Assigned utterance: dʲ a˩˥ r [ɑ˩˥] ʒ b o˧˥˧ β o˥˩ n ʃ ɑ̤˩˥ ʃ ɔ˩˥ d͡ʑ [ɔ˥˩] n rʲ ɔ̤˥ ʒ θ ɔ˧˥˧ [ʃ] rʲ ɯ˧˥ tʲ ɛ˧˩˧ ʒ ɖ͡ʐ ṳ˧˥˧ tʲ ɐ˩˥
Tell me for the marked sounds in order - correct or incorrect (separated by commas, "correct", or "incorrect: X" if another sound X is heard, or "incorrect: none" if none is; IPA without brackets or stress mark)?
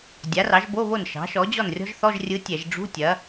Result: correct, correct, incorrect: ʒ